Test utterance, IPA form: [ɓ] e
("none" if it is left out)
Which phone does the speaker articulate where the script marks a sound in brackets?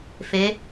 f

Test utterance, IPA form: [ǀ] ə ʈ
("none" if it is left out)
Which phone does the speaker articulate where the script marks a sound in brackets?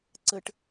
ǀ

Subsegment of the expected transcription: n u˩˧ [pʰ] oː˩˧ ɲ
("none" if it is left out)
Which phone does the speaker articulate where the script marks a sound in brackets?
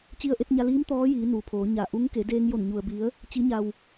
pʰ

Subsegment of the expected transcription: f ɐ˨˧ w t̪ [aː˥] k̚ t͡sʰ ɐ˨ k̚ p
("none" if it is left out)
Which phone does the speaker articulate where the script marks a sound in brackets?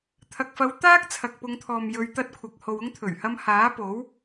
aː˥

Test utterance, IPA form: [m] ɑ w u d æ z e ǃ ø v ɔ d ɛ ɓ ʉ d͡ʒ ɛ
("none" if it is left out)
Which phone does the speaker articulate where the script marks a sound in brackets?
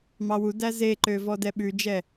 m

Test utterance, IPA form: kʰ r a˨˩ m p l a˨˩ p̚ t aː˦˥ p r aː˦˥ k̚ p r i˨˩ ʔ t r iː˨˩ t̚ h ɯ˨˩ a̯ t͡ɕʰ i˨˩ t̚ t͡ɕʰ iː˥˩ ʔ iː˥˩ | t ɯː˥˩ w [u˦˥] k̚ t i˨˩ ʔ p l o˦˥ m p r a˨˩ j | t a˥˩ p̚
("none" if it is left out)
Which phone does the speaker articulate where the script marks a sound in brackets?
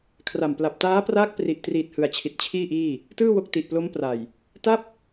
o˦˥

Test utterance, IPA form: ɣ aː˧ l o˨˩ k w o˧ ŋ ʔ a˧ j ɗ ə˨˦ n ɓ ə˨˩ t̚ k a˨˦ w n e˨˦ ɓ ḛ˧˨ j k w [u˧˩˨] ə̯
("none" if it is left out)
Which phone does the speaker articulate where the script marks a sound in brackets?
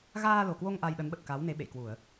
u˧˩˨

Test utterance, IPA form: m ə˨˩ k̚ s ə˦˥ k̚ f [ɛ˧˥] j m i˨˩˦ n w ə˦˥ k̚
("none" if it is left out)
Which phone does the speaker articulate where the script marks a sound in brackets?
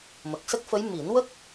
ə˧˥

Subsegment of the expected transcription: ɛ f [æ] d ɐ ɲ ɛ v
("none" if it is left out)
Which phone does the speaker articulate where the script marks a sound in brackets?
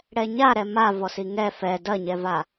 ɛ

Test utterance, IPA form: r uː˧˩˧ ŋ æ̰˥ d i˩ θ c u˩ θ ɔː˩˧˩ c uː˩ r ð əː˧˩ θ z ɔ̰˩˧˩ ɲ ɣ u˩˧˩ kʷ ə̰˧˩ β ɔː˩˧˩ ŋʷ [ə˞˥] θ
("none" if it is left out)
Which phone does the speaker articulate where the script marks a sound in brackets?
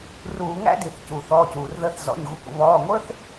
ə˞˥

